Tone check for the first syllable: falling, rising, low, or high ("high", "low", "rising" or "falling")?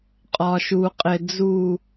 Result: low